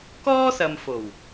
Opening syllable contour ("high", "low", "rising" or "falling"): high